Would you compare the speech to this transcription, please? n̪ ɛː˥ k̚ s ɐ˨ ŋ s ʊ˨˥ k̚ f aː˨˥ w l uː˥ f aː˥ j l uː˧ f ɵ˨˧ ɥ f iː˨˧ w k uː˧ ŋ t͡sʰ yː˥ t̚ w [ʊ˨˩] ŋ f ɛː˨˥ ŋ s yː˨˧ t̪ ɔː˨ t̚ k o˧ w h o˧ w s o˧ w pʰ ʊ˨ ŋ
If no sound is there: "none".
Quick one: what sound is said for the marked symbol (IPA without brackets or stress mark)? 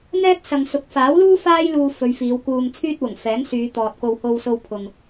ʊ˨˩